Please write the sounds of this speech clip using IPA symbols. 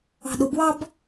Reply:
ɑ̤ɗʊbwɑb

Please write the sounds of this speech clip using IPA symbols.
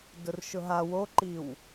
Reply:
dʊrʃʊɦa woǃiw

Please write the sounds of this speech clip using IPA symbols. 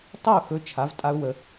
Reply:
tˤə˥˩ʊ̯xɵ˩˥ t͡ʃʰa˩˥vtʼa˥ʊ̯wə˧

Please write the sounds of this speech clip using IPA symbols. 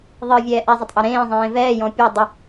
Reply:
ðˤɨvʲɛː ʔɛzˤətˤʔɛ ɾẽːzˤẽː vɛːjɔ̃ pʲɔ dˤə

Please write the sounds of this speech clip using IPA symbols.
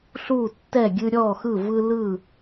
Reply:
ɬu˥˩tːɛ˥˩ɡʲɨ˦ ɾʲɔ˥˩xɯ˥˩vɯ˦lɯ˥˩

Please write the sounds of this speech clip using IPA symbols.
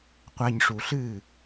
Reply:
qʷa˨ɲʂu˨ɬɨː˦˨

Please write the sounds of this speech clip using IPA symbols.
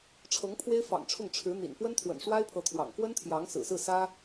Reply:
ʈ͡ʂʰɤ˧˥ŋpʰwe˥ɪ̯fɑ̰˨˩ŋʈ͡ʂʰʊ˥˩ŋ ʈ͡ʂʰɻ̩˧˥n̪ḭ˨˩n pwə˥nt̪ʰwə̰˨˩nʂwa˥ɪ̯pʰɤ˧˥ t̪ʰwɑ̰˨˩ŋ kwə˥nt̪ʰjɑ˧˥ŋsɹ̩˨˩sɹ̩˥˩ sä˥

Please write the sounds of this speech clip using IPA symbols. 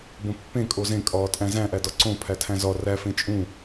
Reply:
bõpːẽ kʼozẽ kʼɒːtʼæ̃zæ̃ ʔædɒǀõ pʰætʰæ̃zɒ ræ fẽt͡ʃʼũ

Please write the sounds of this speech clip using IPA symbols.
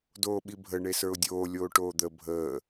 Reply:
doːɓibʱə ɳesə˞ʊ̯dʲoː lʲoːʈoːd̪ə bʱəː

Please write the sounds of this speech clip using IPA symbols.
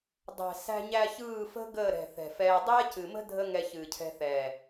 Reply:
dˤæ̤˨sæ̤˧ɲæ˧ çɯː˦˨fə̤˦ ɡəː˦˨ɾɛ̤˨ θɛ̤˨fɛː˧ dˤɛː˦cɨ˨mə̤˦ dʱə˦ŋɛ˧ çɨː˨cʰɛ̤˧θɛː˨

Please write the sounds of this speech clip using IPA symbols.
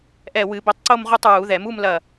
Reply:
ʔɛ˧˩ wɨ˨˩˦ bɘ˨˦tˤǀo˥˧m ʁu˥˧tˤɹu˨˩˦ ðɛ˨˩˦mu˥˧mlɐ˧˩

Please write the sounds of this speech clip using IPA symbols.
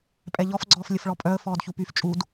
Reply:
pʼɛʎɔfɡ͡ǀɔːf lʲəfɭɔpʼœə̯ fɔːdçupyf t͡ʃʼud

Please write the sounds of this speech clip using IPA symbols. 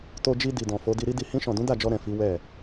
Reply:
to˧d͡ʒi˧ di˨dɔ̃˨fo˨˦ di˧ɾi˦di˧ hĩ˧ʃɔ̃˨dũ˨˦ da˦˨d͡ʒɔ˧ ɾɛ̃˨ fi˨˦wɛ˦˨

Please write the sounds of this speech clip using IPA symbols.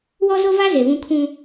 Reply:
wɔ˦ zo˦va˦ ze˨βũ˦ kʰũ˦

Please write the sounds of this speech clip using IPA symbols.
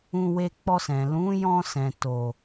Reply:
ũ˧ we˧k͡pɔ˧sɛ̃˨ lũ˨˦jɔ̃˧sɛ̃˨ to˨

